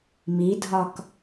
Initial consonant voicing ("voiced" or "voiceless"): voiced